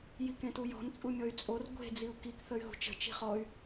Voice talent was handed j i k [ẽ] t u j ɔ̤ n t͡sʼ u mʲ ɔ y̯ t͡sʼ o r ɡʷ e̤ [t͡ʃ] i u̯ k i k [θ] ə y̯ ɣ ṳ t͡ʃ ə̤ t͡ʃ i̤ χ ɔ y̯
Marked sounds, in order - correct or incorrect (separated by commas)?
correct, incorrect, correct